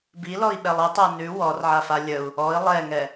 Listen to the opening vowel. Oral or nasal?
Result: oral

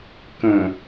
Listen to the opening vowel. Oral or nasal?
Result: nasal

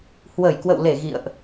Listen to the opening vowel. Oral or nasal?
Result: oral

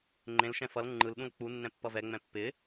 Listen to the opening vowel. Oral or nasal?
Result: nasal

